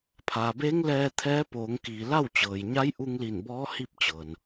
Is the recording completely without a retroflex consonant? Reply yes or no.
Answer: yes